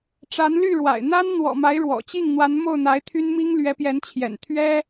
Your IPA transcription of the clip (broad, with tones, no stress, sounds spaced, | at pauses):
ʈ͡ʂ a˧˥ n l y˥˩ ɻ w a̰˨˩ ɪ̯ n̪ a˥ n n̪ w ɔ̰˨˩ m a˧˥ ɪ̯ ɻ w ɔ̰˨˩ t͡ɕ i˥˩ ŋ n̪ w a˧˥ n m o˥˩ ʊ̯ n̪ a˧˥ ɪ̯ t̪ʰ y˥ n m i˥ ŋ l ɥ ɛ˧˥ p j ɛ˧˥ n t͡ɕʰ j ɛ̰˨˩ n t̪ʰ ɥ ɛ˥